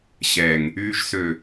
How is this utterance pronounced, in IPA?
ɕ ɛ˨ ŋ | yː˨ ʒ s ø˨

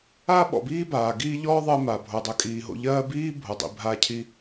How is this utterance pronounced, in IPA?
aː˦ ɓ ɔ̰˨ b iː˦ b aː˨ ɡ iː˧ ʎ ɔː˦ ðˤ ɜ˧ m a˨ bʱ o˧ dˤ ɜ˧ kʼ iː˧ ɦ o̰˦ ʎ ɜː˦ b iː˦ bʱ o˨ dˤ ḭ˧ bʱ aː˦ cʰ i˦

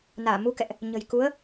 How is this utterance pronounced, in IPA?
n aː˧˩ m u˧ k ɛ̰˧˨ ʔ | ɲ ə̤˨˩ j k u˨˦ ə̯

